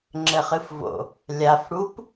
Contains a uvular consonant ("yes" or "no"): yes